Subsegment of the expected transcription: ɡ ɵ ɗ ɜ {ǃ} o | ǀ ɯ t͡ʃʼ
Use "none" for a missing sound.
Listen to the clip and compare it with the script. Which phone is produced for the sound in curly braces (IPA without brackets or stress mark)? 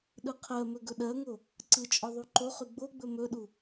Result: ŋ